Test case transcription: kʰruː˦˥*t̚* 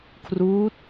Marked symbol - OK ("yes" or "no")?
yes